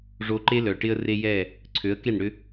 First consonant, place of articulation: retroflex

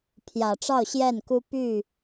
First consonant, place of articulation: labial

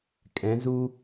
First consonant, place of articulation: velar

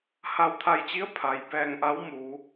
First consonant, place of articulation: glottal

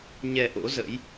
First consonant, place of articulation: palatal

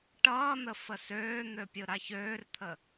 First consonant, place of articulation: retroflex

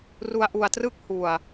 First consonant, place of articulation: alveolar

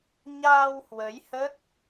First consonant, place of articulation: palatal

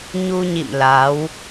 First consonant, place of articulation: palatal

